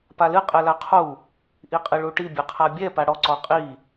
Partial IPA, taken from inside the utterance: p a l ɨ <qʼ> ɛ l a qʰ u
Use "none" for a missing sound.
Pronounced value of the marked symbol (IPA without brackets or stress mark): qʼ